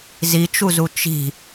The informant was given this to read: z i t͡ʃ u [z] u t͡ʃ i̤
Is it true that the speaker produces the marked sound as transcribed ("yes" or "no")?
yes